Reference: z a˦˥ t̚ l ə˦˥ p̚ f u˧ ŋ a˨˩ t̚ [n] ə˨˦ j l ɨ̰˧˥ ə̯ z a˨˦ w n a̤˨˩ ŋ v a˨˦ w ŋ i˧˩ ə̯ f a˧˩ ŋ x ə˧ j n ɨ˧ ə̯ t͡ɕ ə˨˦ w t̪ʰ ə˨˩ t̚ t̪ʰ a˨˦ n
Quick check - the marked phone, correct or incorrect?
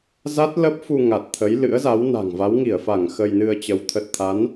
incorrect